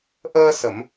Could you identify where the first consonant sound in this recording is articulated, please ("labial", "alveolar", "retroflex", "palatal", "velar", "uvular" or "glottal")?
glottal